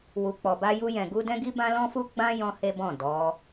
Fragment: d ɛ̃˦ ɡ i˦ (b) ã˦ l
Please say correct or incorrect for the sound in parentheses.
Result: correct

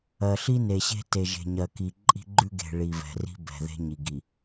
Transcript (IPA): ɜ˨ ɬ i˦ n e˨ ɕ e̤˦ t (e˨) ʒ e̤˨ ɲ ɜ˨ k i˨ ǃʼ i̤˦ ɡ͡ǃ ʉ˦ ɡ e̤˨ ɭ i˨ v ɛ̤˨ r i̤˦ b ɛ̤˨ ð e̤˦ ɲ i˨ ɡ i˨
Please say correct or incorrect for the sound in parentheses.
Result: correct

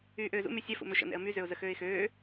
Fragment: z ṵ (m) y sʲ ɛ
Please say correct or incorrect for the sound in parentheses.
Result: correct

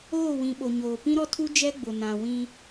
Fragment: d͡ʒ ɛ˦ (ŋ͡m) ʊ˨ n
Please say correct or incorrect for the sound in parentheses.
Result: incorrect: ɡ͡b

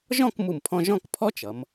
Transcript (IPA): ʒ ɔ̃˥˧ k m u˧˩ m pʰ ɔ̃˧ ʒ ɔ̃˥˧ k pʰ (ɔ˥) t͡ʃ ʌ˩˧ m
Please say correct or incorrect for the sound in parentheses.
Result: correct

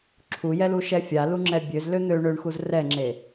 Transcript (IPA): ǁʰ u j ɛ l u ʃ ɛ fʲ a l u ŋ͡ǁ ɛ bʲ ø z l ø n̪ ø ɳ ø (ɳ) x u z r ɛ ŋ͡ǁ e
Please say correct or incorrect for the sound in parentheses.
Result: correct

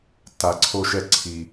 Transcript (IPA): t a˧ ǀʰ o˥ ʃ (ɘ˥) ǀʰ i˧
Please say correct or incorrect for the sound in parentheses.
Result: incorrect: ɛ˥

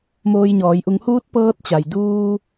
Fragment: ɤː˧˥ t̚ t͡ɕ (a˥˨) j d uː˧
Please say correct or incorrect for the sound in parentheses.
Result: incorrect: a˩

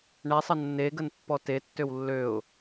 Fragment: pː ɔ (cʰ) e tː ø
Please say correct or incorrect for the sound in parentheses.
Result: incorrect: t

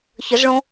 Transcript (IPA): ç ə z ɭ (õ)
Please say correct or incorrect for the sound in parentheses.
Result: correct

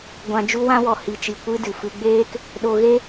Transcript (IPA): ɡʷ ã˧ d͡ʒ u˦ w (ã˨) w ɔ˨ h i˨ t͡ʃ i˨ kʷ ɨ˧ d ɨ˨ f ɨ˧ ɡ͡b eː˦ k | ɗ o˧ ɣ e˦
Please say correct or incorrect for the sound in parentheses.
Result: incorrect: ã˦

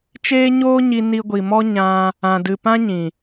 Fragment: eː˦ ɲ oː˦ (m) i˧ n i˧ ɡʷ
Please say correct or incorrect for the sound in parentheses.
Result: incorrect: ɲ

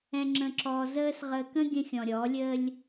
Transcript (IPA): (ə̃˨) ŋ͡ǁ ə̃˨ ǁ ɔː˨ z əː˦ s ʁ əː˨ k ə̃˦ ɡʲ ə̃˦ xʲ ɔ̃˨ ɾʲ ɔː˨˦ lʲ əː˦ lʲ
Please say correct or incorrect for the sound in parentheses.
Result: incorrect: ɛ̃˨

